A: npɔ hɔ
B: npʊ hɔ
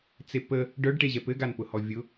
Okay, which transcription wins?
B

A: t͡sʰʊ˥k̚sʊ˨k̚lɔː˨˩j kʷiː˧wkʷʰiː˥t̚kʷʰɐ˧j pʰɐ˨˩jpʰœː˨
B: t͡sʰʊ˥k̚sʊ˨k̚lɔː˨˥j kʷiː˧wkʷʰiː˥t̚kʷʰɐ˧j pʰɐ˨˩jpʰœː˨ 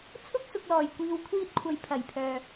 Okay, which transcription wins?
A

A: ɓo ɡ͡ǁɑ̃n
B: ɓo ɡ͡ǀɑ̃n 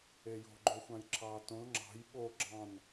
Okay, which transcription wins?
A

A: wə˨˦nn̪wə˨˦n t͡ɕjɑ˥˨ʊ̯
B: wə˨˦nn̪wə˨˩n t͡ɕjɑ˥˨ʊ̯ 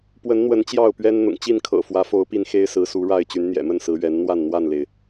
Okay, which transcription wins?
A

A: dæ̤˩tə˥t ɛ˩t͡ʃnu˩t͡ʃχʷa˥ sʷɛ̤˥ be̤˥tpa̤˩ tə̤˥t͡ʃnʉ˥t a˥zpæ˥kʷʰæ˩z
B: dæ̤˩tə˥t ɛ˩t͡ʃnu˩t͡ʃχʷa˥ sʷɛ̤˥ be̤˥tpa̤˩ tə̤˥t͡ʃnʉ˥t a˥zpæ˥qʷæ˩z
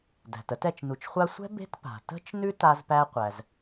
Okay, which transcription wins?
B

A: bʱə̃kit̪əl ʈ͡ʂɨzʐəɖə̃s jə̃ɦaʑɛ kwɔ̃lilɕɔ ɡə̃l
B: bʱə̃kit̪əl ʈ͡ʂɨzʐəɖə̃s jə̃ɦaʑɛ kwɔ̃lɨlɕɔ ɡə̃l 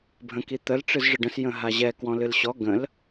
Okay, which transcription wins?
B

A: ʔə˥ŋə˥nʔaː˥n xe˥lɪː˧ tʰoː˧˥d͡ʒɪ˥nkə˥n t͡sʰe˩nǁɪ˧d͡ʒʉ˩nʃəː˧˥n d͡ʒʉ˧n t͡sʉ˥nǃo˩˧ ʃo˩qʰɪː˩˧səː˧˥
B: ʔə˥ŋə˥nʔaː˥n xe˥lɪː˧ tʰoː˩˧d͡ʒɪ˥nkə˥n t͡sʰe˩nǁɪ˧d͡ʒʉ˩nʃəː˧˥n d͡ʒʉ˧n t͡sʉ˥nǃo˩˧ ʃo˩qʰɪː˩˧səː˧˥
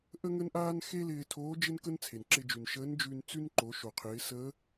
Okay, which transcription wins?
A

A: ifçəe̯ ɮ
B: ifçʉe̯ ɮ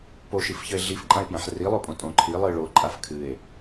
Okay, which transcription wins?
A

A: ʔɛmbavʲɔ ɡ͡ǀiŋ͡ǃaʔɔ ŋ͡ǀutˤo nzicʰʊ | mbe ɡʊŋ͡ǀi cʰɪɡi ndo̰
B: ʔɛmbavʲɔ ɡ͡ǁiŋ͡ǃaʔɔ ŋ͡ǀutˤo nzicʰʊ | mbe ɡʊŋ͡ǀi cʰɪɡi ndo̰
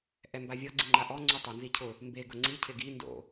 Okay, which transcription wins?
A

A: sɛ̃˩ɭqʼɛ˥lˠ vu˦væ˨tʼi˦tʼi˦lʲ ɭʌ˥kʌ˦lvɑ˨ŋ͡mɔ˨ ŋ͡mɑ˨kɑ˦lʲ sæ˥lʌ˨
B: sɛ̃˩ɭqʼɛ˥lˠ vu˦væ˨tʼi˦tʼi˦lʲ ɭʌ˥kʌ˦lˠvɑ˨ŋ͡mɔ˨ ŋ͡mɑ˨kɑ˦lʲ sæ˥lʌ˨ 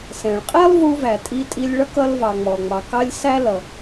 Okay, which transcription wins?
A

